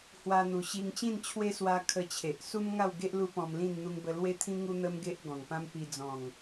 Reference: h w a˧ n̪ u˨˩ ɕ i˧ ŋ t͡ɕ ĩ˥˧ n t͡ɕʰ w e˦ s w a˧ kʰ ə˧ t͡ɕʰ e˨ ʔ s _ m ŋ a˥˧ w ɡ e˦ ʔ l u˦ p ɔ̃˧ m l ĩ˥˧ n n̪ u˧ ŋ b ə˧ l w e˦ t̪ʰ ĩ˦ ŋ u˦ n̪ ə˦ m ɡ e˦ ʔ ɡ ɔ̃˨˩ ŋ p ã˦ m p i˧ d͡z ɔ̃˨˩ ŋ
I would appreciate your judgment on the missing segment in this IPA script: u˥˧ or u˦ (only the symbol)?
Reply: u˦